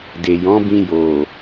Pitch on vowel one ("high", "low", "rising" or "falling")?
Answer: low